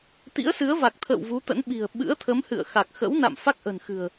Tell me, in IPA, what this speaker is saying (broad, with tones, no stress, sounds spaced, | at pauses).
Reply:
t̪ ḭ˧˥ ə̯ s ɨ˨˦ ə̯ v a˨˩ k̚ t̪ʰ ə̰ː˧˨ w v u˨˦ t̪ ə̰˧˥ n ɓ i̤˨˩ ə̯ ɓ ɨ̰˧˥ ə̯ t̪ʰ ə˨˦ m h ɨ̰˧˨ ə̯ x a˨˩ k̚ x ə̰˧˥ w n a̰˧˨ m f a˦˥ k̚ ʔ ə̤˨˩ n x ɨ̤˨˩ ə̯